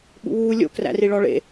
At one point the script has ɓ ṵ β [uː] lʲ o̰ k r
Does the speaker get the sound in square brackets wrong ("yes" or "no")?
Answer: no